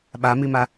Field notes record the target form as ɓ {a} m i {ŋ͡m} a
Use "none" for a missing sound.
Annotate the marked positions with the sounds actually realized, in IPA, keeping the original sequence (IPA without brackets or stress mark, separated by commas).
a, m